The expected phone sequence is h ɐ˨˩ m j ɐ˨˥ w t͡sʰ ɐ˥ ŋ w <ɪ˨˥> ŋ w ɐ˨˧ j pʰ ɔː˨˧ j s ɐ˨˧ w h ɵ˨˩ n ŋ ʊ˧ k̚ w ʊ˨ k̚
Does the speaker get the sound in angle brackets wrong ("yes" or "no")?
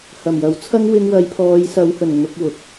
yes